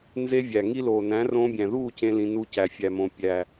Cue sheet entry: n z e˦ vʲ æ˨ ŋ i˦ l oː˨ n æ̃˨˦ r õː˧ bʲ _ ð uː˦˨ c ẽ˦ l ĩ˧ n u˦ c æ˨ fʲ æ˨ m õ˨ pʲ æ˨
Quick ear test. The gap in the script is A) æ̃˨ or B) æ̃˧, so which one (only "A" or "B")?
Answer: A